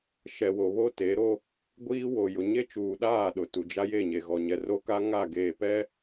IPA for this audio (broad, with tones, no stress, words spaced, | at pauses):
ʃɛ˨wo˨ βo˦te˨˦ɾo˦ | ɡʷiː˦wo˨ jʊ˨ɲe˦t͡ʃuː˨ɗaː˦˨ ɗʊ˨tu˨d͡ʒa˦ je˦˨ɲe˨ɣɔ˨ɲɛ˨ ro˦ka˦ ŋa˦˨ ɡeː˨pɛ˦